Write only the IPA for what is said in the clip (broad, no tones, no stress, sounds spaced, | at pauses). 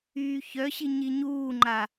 yː ç œ ɕ i ɲ i ɲ uː ŋ͡ǃ a